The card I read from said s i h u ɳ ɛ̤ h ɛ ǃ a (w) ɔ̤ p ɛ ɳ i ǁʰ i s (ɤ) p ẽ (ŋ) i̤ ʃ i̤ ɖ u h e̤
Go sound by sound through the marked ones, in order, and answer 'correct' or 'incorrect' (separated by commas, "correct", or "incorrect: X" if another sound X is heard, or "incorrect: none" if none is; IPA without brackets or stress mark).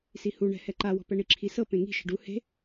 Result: correct, correct, correct